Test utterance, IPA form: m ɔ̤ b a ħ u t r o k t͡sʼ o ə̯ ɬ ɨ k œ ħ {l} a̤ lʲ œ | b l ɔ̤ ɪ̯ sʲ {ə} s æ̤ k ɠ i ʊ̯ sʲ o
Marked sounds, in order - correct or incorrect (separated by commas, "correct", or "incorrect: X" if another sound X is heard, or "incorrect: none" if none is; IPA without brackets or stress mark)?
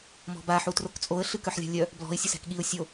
incorrect: lʲ, correct